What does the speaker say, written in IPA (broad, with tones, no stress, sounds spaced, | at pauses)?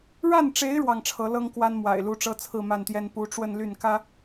ɻ a˥˩ n ʈ͡ʂ e˧˥ ɪ̯ ɻ w ɑ˥˩ ŋ ʈ͡ʂʰ ɤ˧˥ l ɤ˥ ŋ k w a˥ n m w a̰˨˩ ɪ̯ l u˧˥ ʈ͡ʂ ɤ˥ t͡sʰ ɹ̩˥˧ m a˥˩ n t̪ j ɛ˥ n p u˧˥ ʈ͡ʂ w ə˥˧ n l y˥˩ n k ä˥